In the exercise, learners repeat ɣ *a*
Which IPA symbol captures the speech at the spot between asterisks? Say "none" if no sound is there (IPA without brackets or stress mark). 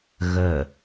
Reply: ə